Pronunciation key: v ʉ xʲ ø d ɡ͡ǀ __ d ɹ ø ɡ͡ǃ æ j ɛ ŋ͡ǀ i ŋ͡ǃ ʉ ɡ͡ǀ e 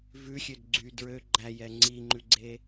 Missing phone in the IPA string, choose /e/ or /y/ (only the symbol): y